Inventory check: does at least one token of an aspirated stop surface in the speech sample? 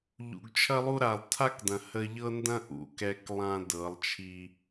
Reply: yes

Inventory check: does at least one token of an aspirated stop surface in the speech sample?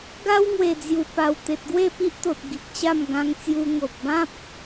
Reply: no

